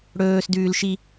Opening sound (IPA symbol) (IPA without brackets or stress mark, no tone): ɽ